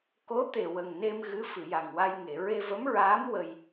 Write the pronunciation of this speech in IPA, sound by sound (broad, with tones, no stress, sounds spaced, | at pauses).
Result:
k o˧˥ t̪ e˨˩ w ə˨˩ ŋ n e˧ m ɣ ɨ˧˥ f ɨ˨˩˨ j a˨˩ ŋ w a˧ j ŋ e˨˩˨ ɹ e˧ v ə˧˥ m ɹ aː˧˥ m w ə˧ j